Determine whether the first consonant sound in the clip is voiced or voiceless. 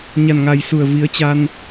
voiced